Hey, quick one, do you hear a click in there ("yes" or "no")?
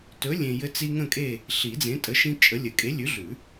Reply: no